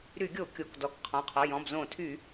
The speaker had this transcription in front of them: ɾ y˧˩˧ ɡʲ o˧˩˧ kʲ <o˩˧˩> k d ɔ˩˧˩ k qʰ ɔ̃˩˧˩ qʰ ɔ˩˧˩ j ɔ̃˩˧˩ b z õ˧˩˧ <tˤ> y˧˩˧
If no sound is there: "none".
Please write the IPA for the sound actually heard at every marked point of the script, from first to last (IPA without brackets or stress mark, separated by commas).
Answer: o˩˧˩, tʰ